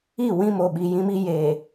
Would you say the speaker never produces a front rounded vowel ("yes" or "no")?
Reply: yes